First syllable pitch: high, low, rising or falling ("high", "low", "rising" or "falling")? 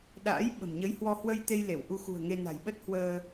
rising